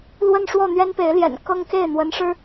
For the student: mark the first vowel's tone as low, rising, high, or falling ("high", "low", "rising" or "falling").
falling